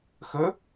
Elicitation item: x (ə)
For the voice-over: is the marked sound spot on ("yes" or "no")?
yes